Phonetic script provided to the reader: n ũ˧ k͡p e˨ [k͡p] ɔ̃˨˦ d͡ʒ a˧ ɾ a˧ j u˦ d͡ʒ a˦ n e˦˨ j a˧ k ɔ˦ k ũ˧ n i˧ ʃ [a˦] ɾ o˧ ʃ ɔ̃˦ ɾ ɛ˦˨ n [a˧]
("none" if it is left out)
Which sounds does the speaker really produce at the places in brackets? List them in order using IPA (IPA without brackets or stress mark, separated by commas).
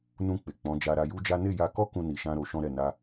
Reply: k͡p, ã˦, a˧